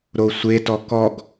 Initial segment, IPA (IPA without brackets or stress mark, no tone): ɾ